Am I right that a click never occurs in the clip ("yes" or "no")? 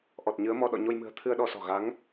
yes